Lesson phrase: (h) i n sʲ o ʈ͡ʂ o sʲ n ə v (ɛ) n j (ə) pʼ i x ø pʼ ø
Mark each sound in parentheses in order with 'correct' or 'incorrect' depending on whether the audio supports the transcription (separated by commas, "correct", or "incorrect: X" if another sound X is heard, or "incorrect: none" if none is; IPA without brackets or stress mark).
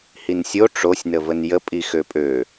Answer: correct, incorrect: ə, correct